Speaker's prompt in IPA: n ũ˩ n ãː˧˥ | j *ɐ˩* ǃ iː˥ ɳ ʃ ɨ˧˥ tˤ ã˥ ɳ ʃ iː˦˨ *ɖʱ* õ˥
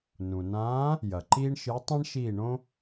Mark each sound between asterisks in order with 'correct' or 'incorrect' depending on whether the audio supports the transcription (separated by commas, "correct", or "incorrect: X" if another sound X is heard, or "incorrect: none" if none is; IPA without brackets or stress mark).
correct, incorrect: ɳ